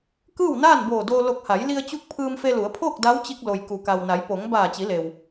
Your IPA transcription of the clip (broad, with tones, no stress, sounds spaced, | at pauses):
k ɯː˥˨ w n aː˥˨ n b oː˧˩ d oː˧ l o˧˩ k̚ h a˩˧ j l i˧ ə̯ t͡ɕ u˧˥ k̚ pʰ ɯː˧ m f e˧ l u˩˧ ə̯ pʰ oː˥˨ k̚ d a˧˥ w t͡ɕ i˧ k̚ l o˩ j k u˩ k a˩ w n a˩˧ j p o˩˧ ŋ b aː˧˩ t͡ɕ i˩˧ l e˩ w